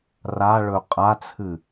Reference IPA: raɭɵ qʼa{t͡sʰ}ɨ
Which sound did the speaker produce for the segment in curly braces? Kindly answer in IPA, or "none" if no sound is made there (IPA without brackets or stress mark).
t͡sʰ